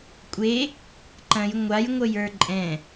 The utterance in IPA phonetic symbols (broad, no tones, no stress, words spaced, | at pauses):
kʷʼe | ǃɐ̃j ŋʷajŋʷəjə˞ ǃʼɛ̃